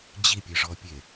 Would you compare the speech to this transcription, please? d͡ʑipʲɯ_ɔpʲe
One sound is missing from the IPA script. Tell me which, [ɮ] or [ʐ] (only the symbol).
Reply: ʐ